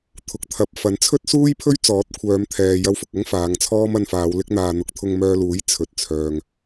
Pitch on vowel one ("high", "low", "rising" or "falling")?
low